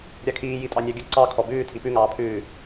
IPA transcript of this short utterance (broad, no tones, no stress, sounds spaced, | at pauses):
ɾʲ a kʰ iː j i tʼ ɑ nʲ ɑ ɡʲ ə ǀ ɑ kʰ ɔ b ʉː tʰ i p ʉ ŋ ɑː pʰ ʉː